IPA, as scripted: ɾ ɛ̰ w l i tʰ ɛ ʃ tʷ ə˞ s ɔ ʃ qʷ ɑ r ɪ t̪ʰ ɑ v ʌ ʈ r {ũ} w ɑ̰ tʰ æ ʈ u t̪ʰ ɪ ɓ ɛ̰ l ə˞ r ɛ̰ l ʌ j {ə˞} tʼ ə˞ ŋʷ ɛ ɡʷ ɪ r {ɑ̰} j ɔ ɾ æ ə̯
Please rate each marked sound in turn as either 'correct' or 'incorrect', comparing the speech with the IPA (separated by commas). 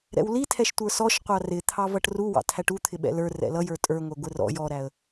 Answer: incorrect, correct, incorrect